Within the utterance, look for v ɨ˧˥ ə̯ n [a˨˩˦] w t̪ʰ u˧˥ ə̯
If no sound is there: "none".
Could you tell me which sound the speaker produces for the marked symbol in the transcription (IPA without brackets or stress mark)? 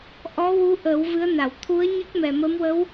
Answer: a˨˩˨